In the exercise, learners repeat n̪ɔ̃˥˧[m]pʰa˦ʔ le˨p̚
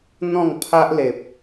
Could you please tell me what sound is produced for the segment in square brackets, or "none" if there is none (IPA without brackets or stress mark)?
ŋ